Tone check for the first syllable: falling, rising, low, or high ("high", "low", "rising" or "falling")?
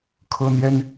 high